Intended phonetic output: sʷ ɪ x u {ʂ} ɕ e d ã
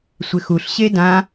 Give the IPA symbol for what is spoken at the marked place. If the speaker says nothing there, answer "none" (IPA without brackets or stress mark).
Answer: ɬ